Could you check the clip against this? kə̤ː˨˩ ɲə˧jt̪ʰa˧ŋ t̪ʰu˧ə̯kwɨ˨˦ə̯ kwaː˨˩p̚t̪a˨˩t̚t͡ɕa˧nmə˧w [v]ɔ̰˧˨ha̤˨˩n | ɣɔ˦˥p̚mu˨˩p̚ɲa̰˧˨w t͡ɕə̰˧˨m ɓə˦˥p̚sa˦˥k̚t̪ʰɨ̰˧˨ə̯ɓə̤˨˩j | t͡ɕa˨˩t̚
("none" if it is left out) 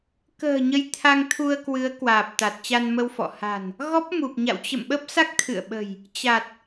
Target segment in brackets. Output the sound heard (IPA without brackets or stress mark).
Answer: f